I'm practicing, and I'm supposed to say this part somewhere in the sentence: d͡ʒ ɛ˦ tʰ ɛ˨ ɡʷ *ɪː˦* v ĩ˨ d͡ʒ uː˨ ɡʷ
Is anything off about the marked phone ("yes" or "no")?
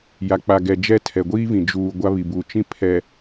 yes